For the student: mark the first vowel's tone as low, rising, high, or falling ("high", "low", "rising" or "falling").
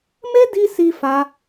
high